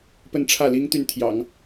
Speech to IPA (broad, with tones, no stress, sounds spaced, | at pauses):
p ə˥˧ n ʈ͡ʂʰ ä˥˩ l i˥ ŋ t̪ y˥˩ n t̪ʰ j ɑ̰˨˩˦ ŋ